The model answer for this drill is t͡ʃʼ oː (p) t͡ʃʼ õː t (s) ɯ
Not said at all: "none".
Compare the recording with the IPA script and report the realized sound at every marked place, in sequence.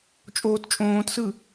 t, s

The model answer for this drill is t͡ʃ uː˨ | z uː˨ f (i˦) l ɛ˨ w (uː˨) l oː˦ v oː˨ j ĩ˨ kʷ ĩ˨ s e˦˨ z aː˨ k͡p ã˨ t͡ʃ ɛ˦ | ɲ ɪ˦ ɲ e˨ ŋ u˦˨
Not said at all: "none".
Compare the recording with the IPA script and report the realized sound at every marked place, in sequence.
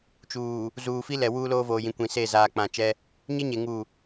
i˦, uː˦

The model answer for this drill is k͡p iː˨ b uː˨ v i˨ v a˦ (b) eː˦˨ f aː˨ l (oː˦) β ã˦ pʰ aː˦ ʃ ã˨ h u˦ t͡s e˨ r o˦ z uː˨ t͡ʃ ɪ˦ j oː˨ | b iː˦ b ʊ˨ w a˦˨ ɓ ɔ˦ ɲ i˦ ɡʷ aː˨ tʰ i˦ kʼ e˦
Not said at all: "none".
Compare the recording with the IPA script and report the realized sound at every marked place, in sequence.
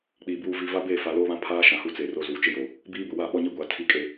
b, oː˦

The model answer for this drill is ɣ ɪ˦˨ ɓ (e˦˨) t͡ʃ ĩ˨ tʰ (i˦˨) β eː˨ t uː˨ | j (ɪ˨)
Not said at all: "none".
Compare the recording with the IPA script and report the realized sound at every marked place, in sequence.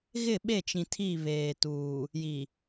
e˦˨, i˦˨, i˨

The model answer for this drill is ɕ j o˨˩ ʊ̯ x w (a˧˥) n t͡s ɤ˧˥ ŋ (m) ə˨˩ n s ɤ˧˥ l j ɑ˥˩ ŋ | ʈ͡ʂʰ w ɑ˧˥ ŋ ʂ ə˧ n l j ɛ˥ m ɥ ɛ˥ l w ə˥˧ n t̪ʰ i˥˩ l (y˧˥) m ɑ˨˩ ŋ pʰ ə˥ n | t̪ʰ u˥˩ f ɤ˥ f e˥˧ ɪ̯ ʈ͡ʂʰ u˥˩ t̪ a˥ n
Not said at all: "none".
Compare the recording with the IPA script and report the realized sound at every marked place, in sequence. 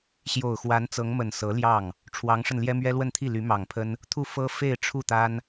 a˧˥, m, y˧˥

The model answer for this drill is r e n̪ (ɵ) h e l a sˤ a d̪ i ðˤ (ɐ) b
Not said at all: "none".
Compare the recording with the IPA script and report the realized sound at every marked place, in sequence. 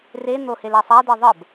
o, ə

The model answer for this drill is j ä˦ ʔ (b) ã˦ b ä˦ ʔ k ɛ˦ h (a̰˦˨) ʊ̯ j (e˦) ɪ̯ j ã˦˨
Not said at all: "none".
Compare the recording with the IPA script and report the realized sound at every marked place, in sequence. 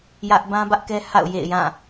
b, a̰˦˨, ḛ˦˨

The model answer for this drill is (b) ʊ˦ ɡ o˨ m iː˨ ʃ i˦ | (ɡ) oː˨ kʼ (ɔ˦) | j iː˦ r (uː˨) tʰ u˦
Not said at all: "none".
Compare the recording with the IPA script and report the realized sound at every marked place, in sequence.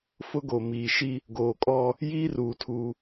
f, ɡ, ɔ˦, uː˨

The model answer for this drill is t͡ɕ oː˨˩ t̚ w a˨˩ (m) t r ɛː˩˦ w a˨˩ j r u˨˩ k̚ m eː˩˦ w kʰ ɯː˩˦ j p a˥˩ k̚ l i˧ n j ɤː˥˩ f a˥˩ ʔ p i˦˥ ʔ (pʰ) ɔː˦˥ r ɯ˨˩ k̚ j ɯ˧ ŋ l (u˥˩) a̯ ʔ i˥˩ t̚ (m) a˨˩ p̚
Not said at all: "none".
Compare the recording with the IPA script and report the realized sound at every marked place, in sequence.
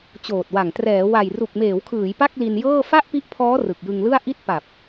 ŋ, pʰ, ɯ˥˩, p

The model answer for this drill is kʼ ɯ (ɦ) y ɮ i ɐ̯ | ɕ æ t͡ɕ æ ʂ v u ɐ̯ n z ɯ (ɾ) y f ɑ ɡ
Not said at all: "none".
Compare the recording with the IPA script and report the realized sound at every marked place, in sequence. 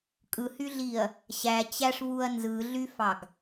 h, ɮ

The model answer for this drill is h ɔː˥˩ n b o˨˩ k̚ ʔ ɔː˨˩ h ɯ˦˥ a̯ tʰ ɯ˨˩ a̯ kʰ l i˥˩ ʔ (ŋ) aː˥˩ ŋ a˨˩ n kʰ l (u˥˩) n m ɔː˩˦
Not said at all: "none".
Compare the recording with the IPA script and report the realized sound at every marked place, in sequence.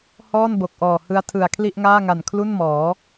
ŋ, u˥˩

